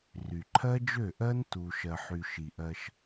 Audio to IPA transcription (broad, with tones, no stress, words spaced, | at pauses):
ry˨ǃʰɜ˦d͡ʒø˦˨ʔɜ˦n tu˧ʃɜ˧ħy˧ ʃi˨ʔɜ˧ʃ